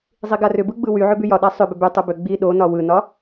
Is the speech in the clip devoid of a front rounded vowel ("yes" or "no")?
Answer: no